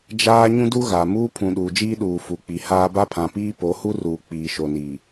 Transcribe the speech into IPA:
d͡ʒaː˦ ɲũ˦du˦ɣa˨ muː˦pʰũ˨ ɗuː˨d͡ʒiː˦ɗuː˨ fu˨k͡pi˨ haː˦ ba˦pʰã˨piː˦ po˨˦hu˦ruː˨ k͡piː˨ʃo˨niː˨

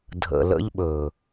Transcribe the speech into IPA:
dʱə̰˨ lə̰˦ʎɓɵ˨

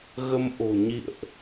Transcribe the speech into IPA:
ɣə˧mʔo̤˨˩ ɲḭ˧˨ə̯ʔ

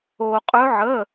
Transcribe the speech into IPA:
o˧qʼɵ˦˥ʕə˧˥˧

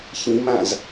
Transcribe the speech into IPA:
çĩmãz

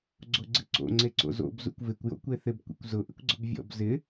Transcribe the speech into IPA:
ɡ͡ǀoɡ͡ǀɪǀo̰ ŋ͡ǀeǀo̰zo̰b zṵkʷvɪkʷ jo̰kʷeθɪb kʷḛkʷzʊ ʔɪkʷɡ͡ǀʊbvʲɔ̰b zɪ

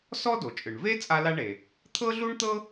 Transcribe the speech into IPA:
sɔ˥do˩t͡ʃʼɯ˩ɳ ve˥ t͡sʼa˥la˥ɳe˩ | t̪ʰɤ˥ɮu˥ɳt̪ɤ˥

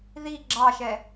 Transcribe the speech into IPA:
ði ɡ͡ǁɑʃɛ

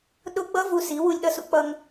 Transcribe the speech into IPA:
ɗʊ˦ ɡ͡bʌ˦ vu˧si˨˦wu˧lʲ ɗʌ˦sṵ˦k͡pʌ˦ŋ

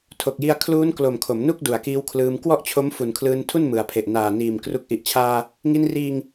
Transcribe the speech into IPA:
tʰo˨˩k̚ji˧a̯ kʰluː˦˥nklo˨˩m kʰo˩˦mnu˥˩k̚ du˨˩a̯kiː˦˥wkʰlɯː˧m kwɔ˥˩ʔt͡ɕʰo˦˥m fu˨˩nkʰlɯː˧ntʰu˥˩n mɯ˨˩a̯pʰe˨˩ʔ naː˨˩niː˨˩m kru˨˩k̚ʔi˨˩ʔt͡ɕʰaː˧ | ŋi˧nriː˧ŋ

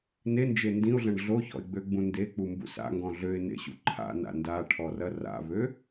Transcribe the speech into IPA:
nend͡ʒe ndĩʊ̯ɮɐ̃ɳ ɮoçɔ̰ɪ̯ɡ͡bøɡ͡bũ ndek͡pumbṵ sa̰ŋɡɔ̃ ɮøɪ̯nḛɕṵ ǃʰa̰na̰ ndaʈʰɔrɐ ra̰βø

